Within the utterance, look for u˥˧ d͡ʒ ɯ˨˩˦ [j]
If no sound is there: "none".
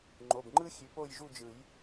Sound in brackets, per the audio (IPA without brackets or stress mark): j